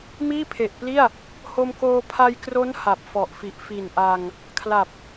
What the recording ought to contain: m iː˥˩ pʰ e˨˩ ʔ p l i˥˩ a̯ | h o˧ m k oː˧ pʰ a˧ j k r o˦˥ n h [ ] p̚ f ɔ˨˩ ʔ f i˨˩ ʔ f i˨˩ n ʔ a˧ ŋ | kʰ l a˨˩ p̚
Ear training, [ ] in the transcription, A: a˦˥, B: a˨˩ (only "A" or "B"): B